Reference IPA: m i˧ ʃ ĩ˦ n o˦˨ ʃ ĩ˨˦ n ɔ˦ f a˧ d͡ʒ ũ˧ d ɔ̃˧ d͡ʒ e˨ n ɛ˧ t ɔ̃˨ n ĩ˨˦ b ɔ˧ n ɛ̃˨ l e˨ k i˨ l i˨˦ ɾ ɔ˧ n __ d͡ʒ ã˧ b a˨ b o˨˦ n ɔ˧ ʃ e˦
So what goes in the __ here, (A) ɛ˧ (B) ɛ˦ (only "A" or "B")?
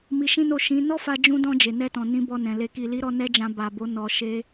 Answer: B